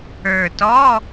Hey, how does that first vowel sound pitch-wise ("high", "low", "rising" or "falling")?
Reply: low